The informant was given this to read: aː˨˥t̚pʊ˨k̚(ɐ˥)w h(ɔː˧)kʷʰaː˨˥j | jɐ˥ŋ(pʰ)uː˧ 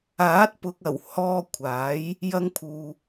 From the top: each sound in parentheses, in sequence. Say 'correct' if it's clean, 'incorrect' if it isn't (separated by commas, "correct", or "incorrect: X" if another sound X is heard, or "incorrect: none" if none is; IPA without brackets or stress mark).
incorrect: ɐ˨˩, correct, correct